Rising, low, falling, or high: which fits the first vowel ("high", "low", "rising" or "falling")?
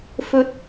low